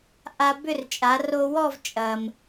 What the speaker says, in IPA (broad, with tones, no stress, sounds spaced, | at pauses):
ʔ a˧ b ʏ˥˧ r t͡ʃʼ a˩˧ r o˧ w ɔ˥˧ v t͡ʃʼ ɐ˩ m